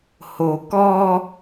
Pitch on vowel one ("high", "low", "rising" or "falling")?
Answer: low